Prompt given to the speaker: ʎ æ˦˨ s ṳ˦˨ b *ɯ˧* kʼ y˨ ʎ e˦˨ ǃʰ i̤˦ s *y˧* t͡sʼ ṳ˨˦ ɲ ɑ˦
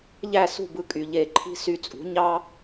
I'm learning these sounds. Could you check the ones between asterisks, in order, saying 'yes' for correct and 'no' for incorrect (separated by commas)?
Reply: yes, yes